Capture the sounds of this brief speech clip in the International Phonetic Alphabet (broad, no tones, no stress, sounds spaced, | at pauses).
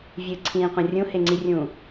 vʲ ɨ ǀʰ ĩː qʷ ɐ̃ rʲ ũ h e ŋ͡ǀ i rʲ ũ